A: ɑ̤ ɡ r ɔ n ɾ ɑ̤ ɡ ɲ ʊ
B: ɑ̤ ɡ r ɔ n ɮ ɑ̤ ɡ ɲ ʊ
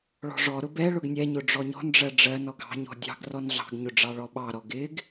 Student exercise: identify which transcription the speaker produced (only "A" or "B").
B